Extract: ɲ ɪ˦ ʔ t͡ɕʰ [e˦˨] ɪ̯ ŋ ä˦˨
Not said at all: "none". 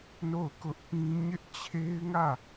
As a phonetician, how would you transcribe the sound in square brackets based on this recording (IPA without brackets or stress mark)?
e˦